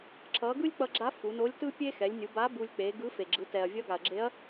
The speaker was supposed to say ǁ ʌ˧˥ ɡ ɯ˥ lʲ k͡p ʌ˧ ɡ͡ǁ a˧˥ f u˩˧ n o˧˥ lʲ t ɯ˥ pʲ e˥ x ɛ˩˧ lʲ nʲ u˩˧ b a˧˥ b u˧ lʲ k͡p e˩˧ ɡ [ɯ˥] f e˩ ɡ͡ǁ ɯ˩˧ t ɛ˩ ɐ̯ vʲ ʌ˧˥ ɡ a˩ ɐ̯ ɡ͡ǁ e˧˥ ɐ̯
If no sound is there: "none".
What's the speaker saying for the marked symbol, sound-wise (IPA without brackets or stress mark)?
ɯ˧˥